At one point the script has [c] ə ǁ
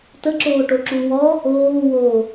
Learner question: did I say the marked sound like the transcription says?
no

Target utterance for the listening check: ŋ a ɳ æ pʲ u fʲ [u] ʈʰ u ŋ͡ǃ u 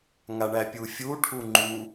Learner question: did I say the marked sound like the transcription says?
yes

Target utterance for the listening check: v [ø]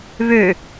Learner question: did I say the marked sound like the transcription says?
yes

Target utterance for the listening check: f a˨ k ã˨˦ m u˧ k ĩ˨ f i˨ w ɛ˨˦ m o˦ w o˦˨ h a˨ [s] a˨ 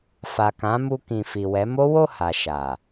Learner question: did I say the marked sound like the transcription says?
no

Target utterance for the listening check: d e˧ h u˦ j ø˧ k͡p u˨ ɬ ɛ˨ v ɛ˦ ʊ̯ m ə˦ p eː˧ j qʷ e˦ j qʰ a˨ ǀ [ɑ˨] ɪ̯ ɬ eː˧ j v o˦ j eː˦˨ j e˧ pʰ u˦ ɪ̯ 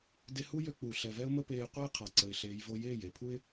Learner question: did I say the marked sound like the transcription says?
no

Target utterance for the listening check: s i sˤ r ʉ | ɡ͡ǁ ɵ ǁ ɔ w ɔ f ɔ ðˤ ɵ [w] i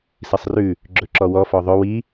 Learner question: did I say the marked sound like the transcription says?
yes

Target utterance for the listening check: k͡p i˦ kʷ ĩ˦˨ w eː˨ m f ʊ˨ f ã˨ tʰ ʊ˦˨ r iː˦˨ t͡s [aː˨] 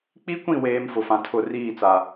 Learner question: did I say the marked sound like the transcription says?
no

